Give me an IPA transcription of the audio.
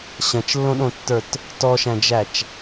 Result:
ɕɐ̃t͡ʃlːõɗõtːə˞t | tɔʃæ̃d͡ʒæt͡ʃ

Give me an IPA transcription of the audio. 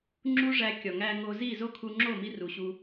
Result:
ŋ͡ǁu˦ʐæ˧ kʲɒ˨ŋæ˧ ŋo˧ zi˦˨zo˦kʰu˧ ŋ͡ǁo˦˨mi˧ ru˨ɕu˧

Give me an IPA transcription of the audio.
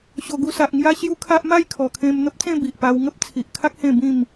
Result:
ɕo˨˩ɡu˧sa˨ʔŋja˦ ɕju˧ kʰa˦ʔ ma˥˧jkʰɔ˨˩kʰẽ˧m n̪ə˦p̚t͡sẽ˥˧ bi˨ʔpa˦w ŋə˦p̚t͡sʰi˨ʔkʰa˦k̚ hẽ˥˧ bĩ˥˧m

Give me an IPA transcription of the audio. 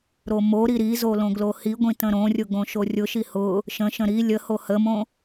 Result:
ɾomoɾi ɾizo lõɡlohiɡʷĩ tə̃ɾõrʲʊ ɡõʃorʲʊʃi hʊ | ʃə̃ʃə̃ ɾi lʲə hohəmõ

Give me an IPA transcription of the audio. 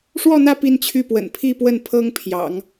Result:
ʂwɔ˥˧n̪ä˥˧ pi˥˧nt͡ɕʰy˥˩pwə̰˨˩n pʰi˥˧pwə˥˩n pʰɤ˥ŋpʰjɑ̰˨˩˦ŋ

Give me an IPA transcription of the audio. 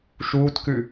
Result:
ʃuːtkʉ

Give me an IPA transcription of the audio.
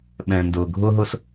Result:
ɓɛ̃˨ndʊ˨ɡʱʊ˦ ɦʊ˦s

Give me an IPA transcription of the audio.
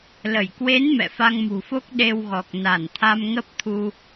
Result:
lə˧˩j kwe˨˦n mɛ̰˧˨fa˧ŋmṳ˨˩fo˦˥k̚ ɗe˧wɣɔ˨˩k̚ na˧˩nt̪ʰa˧mŋə˦˥p̚t̪ʰu˧

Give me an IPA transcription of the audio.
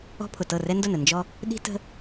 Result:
ɔ̤˦pʰʊ˨tɤ˦˨ rɛ˦ndʊ˦˨nə˨ nd͡ʒɔ˦ | ɗi̤˦tə̤˦

